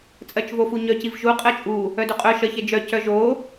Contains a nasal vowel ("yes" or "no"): no